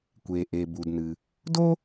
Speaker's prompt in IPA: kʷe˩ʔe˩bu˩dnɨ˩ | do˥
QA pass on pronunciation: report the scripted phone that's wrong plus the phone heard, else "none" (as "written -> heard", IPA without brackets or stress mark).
none